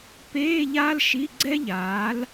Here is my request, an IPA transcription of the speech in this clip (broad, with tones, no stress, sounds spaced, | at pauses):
p eː˧˥˧ ʎ aː˥ l ʃ i˧˥˧ ɡ͡ǀ ɛ˥ ʎ aː˨˥ l